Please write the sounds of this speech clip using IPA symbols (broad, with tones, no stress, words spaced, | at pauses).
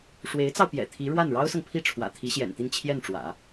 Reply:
ʂwe˧˥ɪ̯t͡sɑ˧ʊ̯pjɛ̰˨˩ t̪ʰi˧˥ɻwa˥˩n ɻɑ˥ʊ̯sɤ˨ŋpʰi˥˩ ʈ͡ʂʰwä̰˨˩t̪ʰi˧˥ɕjɛ̰˨˩nt̪i˥˧n t͡ɕʰjɛ˥˩nʈ͡ʂwä̰˨˩˦